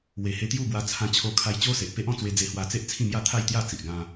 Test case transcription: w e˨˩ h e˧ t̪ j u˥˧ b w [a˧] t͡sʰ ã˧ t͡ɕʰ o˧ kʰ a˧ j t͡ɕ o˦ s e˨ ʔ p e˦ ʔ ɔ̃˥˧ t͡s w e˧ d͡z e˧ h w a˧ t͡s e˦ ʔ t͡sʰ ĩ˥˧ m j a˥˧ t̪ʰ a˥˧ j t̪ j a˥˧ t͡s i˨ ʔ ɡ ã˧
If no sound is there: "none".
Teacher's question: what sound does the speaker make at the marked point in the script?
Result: a˧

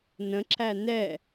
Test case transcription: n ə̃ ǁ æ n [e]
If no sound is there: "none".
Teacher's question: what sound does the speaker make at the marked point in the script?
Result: ɛ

